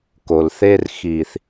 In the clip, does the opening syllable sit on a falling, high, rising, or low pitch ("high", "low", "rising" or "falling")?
low